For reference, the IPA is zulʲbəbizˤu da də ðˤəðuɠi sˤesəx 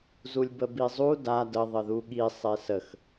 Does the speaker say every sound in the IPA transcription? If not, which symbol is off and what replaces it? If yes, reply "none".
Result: none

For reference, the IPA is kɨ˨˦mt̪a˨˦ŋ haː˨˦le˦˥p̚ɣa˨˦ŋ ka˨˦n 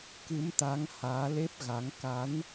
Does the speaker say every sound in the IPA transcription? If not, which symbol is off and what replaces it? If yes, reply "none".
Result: none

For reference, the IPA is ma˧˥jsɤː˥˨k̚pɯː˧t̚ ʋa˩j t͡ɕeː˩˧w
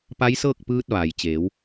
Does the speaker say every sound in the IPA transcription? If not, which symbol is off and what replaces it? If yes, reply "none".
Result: m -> p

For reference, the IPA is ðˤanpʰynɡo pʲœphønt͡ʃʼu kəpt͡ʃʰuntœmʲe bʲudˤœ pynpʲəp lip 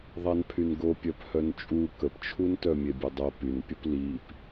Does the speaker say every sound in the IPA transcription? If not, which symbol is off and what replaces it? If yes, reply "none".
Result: ø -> œ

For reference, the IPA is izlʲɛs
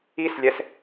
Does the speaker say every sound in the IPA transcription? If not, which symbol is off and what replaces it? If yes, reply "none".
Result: z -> s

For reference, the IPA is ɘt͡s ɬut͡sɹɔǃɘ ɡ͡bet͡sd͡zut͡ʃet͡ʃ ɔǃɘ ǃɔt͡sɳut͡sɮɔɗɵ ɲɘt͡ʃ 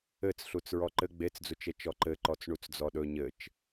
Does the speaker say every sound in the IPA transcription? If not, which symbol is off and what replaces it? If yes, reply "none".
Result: ɮ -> d͡z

